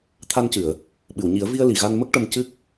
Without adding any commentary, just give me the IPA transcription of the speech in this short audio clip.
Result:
t̪ʰa˧ncɨ˨˩˨ə̯ | ɓɨ˨˩˨wɲi˨˩˦ə̯vi˧ə̯ li˨˩˨ɣa˧nmə˦˥k̚ ʈə˧m cɨ˦˥k̚

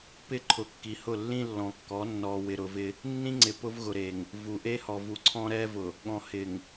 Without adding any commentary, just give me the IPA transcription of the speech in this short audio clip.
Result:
pɪ˦ ǃʰʊ˨˦ kːi˨hʊ˦˨lːĩ˦ lːɔ̃˨kːɔ˨˦ nːɔ˨wɪ˨ɾʊ˨vɪ˦ | nːĩ˦ŋ͡ǀɪ˨ pʊ˦vɣʊ˨ɾe˨ŋ | vu˨ʔe˦hɔ˨vu˨ ǀʰɔ̃˦ɾɛ˦vʊ˨ | ɠɔ̃˨hɪ˨ŋ

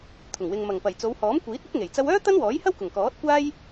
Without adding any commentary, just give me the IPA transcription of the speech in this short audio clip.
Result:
t̪ʰʊ˨˩ŋwɪ˨ŋ mɐ˨˩ŋpɐ˨˩j t͡so˨˧whɔː˨˥mkʷiː˨˥t̚ɐ˥k̚ ŋe˨˩jt͡sɐ˧wœː˥ t̪ɐ˥nwɔː˨˥jhɐ˥w kʊ˨˩ŋkɔː˨˥t̚kʷaː˥j

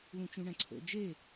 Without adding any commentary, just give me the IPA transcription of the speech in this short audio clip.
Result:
lũt͡ʃũɳæ̃ǀʰo̰ d͡ʒe

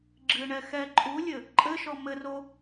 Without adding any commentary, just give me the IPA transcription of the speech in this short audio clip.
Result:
ɡ͡ǁɨɳɛ xɛ ǃʼulʲɘ | ǃʼɘʃɔ mɘro

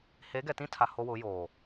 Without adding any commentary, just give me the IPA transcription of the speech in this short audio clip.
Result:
he˨˦ɡɛ˨tĩ˦tʰa˨ ho˦wʊ˨˦joː˨

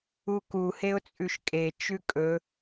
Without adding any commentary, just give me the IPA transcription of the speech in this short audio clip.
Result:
uku heʊ̯t͡sʼʉʃkʼe t͡ʃʉkʼɵ

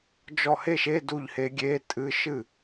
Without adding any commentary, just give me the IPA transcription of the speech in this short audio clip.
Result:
d͡ʒɔ˥˩ he˥˩ʃe˧˥˧ du˥˩ʎhe˧˥ ɡʲe˧˥˧ tʼɨ˧˥˧ʃɨ˥˩

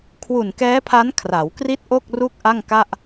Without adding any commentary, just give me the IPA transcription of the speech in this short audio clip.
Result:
kʰwu˨˩nkɛː˦˥pʰa˦˥n kʰra˩˦w kri˥˩t̚ʔo˥˩k̚ ru˥˩k̚ʔa˥˩ŋka˥˩ʔ

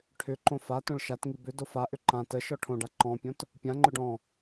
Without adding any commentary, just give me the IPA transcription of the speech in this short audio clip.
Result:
ʈʰʏǃõ fatõɭ ʃatŋi bʏdo faʔʏ ǃã tə ʃɔʈʰõɖa ǃɔ̃pʲõt | pʲãŋ͡ǃʏɖ ɔ̃

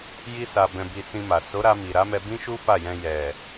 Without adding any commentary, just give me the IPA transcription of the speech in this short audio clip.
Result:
ji˦sa˧ bɛ̃˧bi˧ sĩ˧ma˨ so˨˦ɾa˧mi˨ ɾa˨˦mɛ˧bĩ˦ʃu˦ fa˦˨jɛ̃˧ jɛ˨

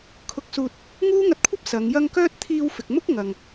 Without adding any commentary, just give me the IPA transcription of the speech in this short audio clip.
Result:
kʰʊ˧k̚suː˧t̚ | ŋuː˥ŋɐ˧t̚kʷʰɐ˥p̚ sɐ˨˧ŋjɐ˥ŋ kœː˥t̚t̪ʰiː˧wfɪ˨k̚ mʊ˥k̚ŋɐ˨ŋ

